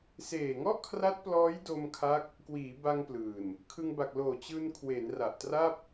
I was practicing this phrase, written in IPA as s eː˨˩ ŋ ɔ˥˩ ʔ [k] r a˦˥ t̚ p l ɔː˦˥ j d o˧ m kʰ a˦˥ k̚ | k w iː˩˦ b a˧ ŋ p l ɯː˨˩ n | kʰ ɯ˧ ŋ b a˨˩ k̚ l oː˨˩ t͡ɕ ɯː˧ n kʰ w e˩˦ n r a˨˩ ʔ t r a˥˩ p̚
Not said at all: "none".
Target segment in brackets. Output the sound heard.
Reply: kʰ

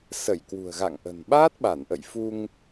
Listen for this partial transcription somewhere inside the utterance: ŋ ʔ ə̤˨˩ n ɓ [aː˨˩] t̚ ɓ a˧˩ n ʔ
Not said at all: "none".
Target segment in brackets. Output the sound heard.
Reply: aː˦˥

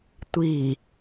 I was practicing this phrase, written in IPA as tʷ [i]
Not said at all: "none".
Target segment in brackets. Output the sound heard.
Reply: i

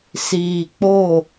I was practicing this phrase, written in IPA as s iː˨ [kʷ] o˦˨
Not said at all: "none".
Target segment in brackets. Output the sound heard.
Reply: k͡p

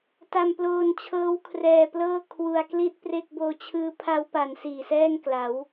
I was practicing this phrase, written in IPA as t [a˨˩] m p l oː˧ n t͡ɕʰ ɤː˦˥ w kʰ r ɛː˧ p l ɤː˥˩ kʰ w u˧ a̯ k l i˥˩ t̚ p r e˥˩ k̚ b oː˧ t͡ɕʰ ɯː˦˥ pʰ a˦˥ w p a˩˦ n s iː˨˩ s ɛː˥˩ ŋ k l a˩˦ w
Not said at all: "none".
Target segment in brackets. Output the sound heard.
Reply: a˧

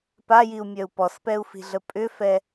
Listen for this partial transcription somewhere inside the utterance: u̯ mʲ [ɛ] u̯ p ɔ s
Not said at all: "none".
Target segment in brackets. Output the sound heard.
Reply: œ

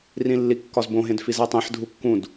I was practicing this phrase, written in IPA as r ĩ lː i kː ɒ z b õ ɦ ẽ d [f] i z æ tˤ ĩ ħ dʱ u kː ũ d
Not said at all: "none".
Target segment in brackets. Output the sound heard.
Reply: f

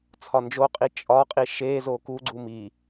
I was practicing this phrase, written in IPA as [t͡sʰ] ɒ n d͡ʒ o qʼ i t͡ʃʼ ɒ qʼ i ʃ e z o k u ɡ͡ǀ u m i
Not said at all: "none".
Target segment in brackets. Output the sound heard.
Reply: t͡sʰ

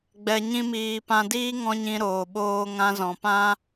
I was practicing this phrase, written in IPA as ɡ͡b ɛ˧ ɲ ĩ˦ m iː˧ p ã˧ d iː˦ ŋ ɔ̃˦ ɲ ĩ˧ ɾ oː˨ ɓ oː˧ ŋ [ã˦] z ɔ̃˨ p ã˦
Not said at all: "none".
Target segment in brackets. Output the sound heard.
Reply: ã˧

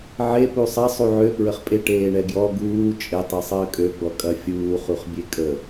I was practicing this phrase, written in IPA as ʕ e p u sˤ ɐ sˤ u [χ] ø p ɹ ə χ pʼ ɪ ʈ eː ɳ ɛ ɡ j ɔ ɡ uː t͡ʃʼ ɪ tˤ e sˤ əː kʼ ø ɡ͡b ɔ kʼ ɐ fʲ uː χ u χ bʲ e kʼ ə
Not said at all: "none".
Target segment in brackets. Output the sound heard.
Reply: ʕ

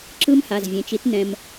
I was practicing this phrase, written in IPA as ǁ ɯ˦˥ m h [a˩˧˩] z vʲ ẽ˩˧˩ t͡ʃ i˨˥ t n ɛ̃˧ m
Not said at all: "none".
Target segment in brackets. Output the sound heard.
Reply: a˩˧˩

